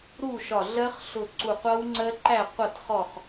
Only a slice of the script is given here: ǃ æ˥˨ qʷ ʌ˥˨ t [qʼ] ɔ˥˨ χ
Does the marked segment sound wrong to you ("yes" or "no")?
yes